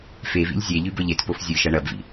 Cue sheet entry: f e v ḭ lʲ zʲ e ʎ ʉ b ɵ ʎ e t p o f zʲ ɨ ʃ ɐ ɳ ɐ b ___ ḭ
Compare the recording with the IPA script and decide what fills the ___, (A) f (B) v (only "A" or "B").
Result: B